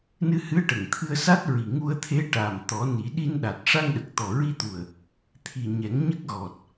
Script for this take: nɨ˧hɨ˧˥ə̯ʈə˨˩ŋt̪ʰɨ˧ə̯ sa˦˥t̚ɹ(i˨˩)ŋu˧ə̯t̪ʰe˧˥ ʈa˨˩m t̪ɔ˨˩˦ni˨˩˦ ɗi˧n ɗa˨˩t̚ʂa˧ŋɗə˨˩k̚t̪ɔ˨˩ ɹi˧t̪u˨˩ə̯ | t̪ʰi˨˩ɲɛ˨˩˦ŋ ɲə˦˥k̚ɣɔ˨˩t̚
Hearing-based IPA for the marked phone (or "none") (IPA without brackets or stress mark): i˨˩